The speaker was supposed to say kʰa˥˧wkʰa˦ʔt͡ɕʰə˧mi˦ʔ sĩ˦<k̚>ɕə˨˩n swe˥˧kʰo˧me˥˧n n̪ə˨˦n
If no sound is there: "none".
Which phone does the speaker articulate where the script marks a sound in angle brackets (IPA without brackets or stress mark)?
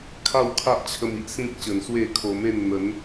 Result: k̚